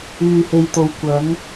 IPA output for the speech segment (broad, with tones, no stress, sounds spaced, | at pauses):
yː˨ h e˨ j t̪ o˨ w kʷ ɐ˨˥ ŋ